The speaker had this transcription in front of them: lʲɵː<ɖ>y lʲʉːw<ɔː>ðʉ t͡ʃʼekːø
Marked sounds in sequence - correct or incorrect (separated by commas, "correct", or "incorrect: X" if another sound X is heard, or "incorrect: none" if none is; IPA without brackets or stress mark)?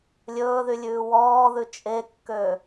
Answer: incorrect: ð, correct